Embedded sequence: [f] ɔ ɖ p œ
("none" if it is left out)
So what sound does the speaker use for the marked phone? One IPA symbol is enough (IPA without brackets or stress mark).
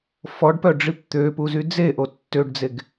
f